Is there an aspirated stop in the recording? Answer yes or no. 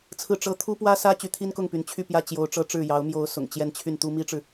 yes